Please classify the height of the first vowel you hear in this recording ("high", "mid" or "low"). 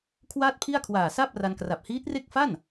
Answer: low